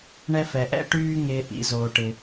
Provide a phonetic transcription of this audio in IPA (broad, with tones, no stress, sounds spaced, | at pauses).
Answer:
ɳ ɛ˦ f ɛ˩ ʔ ɛ̰˥ ʈ yː˦ ŋ ɪː˨ ʔ ḭ˨ z oː˩ ʈ ɪ˩